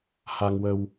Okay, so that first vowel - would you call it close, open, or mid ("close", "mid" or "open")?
open